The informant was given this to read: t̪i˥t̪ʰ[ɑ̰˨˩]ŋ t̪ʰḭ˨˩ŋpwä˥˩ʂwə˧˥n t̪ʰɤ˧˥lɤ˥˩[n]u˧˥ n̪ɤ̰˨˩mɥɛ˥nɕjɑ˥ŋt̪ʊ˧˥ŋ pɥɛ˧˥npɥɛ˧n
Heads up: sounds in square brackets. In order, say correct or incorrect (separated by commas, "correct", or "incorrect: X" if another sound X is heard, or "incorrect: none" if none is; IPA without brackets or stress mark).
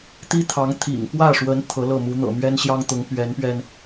incorrect: ɑ˧˥, incorrect: m